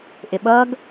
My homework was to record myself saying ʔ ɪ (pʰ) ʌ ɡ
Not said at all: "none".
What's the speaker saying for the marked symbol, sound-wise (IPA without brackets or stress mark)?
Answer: ɓ